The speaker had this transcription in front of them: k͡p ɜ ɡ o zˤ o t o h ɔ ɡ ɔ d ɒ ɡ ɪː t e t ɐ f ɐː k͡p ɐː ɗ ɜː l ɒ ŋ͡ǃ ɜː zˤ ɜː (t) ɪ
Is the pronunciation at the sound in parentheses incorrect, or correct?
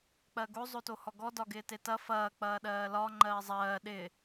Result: incorrect: ɗ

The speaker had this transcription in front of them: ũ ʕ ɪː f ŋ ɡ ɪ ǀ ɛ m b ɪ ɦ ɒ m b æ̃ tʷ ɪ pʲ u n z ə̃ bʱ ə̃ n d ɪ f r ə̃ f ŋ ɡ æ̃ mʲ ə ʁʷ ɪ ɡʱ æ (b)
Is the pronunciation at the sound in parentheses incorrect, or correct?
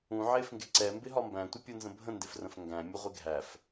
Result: incorrect: f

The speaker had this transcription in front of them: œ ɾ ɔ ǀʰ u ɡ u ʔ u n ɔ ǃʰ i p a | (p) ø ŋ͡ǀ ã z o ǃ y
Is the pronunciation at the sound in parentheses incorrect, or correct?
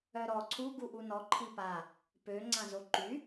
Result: correct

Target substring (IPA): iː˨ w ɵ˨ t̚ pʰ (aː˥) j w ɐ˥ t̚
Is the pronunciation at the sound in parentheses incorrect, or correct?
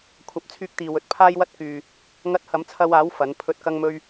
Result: correct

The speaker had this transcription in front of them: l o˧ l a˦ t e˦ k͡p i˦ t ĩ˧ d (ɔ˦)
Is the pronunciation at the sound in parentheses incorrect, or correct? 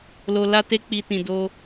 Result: incorrect: o˦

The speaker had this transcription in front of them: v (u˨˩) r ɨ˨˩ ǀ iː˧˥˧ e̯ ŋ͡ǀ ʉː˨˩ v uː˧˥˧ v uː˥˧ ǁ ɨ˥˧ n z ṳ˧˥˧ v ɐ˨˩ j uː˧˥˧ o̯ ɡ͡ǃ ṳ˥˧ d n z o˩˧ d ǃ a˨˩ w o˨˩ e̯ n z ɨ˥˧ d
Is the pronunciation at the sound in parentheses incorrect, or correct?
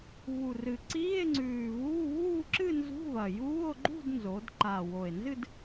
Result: correct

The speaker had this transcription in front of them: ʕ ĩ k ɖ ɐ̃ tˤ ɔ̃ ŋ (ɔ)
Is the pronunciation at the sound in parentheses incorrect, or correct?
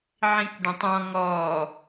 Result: correct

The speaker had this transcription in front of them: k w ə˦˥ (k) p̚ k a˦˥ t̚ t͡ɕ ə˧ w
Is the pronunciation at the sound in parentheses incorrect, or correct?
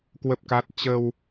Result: incorrect: none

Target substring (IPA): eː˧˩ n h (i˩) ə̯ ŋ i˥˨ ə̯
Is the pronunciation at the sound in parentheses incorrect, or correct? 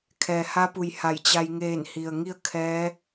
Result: correct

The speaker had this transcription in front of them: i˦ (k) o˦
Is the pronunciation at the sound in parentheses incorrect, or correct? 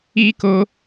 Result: correct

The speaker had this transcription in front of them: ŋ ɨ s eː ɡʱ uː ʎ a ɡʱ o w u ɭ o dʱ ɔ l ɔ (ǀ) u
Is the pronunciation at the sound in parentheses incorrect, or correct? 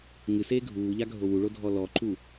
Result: incorrect: ǃ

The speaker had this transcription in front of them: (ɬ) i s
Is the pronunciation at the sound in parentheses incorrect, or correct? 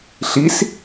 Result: correct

